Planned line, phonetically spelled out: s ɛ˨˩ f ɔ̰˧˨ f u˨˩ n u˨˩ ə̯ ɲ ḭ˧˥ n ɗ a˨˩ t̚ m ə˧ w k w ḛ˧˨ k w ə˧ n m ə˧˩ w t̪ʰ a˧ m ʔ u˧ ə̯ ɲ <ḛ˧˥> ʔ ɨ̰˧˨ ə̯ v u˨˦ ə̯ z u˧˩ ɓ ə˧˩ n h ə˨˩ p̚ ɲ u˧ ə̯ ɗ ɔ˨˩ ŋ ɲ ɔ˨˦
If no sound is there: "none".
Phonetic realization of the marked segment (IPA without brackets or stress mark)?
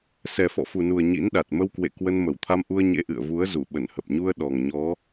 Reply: ḛ˧˥